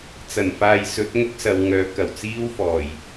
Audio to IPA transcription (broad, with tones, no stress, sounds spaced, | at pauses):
t͡s ɐ˨˩ n f aː˨ j s ɵ˨˥ t̚ ŋ ʊ˥ k̚ s ɐ˨˧ w ŋ œː˨˥ k ɐ˨˩ w t͡s iː˥ w f ɔː˨˩ j